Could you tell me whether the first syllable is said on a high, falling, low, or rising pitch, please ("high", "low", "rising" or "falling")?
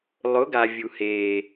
rising